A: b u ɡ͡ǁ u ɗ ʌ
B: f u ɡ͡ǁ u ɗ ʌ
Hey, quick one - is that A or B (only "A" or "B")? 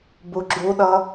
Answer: A